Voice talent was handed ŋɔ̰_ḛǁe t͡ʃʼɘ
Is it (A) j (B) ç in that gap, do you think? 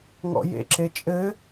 A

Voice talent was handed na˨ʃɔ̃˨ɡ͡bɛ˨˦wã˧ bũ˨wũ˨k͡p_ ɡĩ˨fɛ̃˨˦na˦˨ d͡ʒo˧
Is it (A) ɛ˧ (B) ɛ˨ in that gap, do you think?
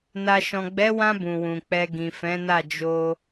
A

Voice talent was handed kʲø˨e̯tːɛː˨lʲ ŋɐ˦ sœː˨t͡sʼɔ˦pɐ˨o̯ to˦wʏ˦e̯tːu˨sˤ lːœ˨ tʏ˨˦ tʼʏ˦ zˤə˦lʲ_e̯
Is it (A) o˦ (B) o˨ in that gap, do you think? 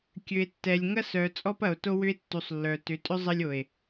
B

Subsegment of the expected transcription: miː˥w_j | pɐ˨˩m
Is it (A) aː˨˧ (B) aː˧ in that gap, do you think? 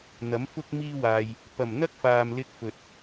B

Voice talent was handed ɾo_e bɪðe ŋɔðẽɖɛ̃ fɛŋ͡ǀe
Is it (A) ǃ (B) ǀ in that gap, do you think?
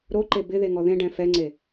A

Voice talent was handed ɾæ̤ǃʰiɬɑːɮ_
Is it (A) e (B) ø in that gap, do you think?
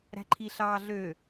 B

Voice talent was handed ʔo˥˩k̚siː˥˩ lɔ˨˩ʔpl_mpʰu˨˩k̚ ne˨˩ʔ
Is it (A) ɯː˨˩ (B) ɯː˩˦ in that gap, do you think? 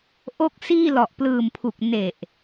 A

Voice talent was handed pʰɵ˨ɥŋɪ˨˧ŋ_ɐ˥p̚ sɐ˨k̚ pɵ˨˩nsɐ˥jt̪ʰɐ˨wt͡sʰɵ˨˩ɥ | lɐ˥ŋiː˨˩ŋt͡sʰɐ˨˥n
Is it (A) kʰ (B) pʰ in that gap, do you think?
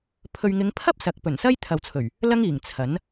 B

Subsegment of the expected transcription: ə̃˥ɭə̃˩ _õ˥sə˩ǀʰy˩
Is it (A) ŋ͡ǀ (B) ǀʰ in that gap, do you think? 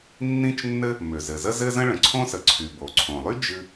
B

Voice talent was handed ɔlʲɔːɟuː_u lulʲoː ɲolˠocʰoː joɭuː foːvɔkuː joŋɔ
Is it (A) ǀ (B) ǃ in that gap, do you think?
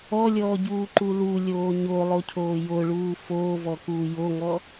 B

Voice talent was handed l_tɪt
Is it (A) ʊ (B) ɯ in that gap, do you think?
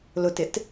A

